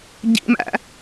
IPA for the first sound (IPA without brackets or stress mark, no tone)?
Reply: ɟ